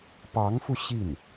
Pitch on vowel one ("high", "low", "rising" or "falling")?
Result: rising